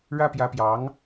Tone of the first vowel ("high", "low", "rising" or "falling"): high